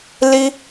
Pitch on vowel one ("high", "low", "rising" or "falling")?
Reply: high